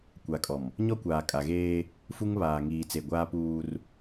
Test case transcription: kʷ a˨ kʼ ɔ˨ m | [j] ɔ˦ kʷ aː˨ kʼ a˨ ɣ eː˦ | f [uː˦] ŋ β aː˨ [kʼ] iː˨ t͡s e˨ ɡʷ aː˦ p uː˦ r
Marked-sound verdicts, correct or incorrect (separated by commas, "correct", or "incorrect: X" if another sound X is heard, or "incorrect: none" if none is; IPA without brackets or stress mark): incorrect: ɲ, incorrect: u˦, incorrect: ŋ